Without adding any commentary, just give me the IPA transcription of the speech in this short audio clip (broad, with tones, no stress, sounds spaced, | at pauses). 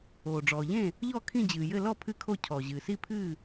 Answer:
oː˩ ɖ͡ʐ ɔː˩ ʎ ẽ˥˩ | ʎ ɔ˥˩ kʰ ĩ˥˩ d͡ʑ ɨː˩ j ɘ˥˩ l ɔ˥˩ pʰ ɨ˥˩ kʰ o˥˩ cʰ ɔ˩ ʑ ɨː˩ s i˥˩ pʰ ɨː˥˩